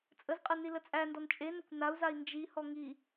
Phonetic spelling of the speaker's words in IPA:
t͡sʼ ə z qʼ ə n i l ə t͡sʼ æ n d ɔ n t͡ʃʼ e n ə kʷ n a u̯ z a i̯ n d͡ʒ i h ɔ ŋ i

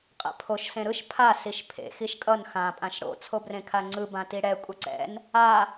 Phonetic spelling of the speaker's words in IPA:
qʼ ɛ̰ pʰ o ʃ s ẽ ɾ ɯ ʃ pʰ a s i ʃ pʰ ḛ x i ʃ kʼ ʌ n x ã pʼ ã ʃ ɽ o̰ t͡sʰ o b r ẽ kʰ a ŋ͡ǀ ɯ b ã t i ɽ ɛ kʷʼ ʌ ǀ ɛ̰ n | a

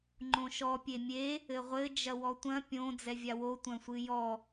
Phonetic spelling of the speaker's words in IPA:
ŋ͡ǃ õ ʃ ɔ pʲ e mʲ e | ɘ ʁʷ ɘ d͡ʒ ɐ w ɔ tʷ ɐ̃ pʲ õ d͡z ɛ vʲ a w o tʷ ɐ̃ sʷ ɨ j ɔ

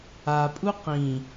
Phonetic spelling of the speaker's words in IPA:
a pʼ u q ĩ

